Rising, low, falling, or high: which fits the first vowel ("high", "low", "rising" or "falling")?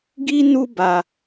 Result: high